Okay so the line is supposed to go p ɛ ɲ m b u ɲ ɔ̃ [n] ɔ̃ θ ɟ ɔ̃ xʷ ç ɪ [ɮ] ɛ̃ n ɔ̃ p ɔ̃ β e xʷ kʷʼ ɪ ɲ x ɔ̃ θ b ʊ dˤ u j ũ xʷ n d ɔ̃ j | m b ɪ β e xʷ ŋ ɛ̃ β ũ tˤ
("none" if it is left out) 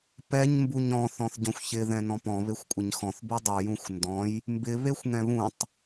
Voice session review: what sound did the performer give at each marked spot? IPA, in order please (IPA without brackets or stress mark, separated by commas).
θ, ð